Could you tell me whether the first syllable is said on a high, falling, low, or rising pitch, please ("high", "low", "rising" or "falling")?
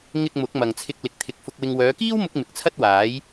low